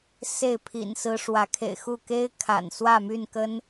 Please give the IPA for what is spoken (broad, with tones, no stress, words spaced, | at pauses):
se˥˨ɪ̯pʰḭ˨˩nsɹ̩˦ ʂwä˨˦kʰḛ˨˩ɪ̯xu˥˨ ke˦ɪ̯ kʰa̰˨˩n swä˥˨my˥˨nkə˦n